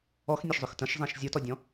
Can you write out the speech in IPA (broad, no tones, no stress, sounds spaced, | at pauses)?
ɔ x nʲ e ʃ zˤ ʏ x t ə̃ ʃ zˤ ẽ ʃ zʲ ʊ t ɔ dʲ ɔ̃